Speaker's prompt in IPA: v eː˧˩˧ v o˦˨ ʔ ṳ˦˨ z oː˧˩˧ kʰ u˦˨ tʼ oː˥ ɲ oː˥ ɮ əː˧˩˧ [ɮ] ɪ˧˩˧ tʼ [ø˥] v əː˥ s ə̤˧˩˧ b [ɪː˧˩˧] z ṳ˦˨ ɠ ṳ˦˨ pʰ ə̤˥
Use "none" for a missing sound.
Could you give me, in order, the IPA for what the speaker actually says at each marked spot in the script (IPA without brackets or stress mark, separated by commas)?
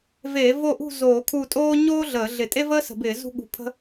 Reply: ɮ, e˥, ɪː˧˩˧